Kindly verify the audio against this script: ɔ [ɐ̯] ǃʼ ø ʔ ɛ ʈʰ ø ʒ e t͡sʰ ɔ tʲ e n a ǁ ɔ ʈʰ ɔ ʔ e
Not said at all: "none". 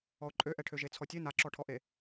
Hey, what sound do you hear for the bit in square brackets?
o̯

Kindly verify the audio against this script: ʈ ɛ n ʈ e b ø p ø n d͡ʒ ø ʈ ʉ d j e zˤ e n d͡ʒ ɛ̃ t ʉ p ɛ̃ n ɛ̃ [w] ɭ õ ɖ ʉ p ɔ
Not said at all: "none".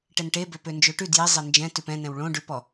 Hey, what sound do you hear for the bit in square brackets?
w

